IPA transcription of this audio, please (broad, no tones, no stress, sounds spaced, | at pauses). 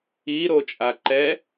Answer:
i ɾ o t͡ʃʼ a ǃ ɛ